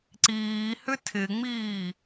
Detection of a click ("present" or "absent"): present